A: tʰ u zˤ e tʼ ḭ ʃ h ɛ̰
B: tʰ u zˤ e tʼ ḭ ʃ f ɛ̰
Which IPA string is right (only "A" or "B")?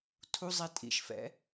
B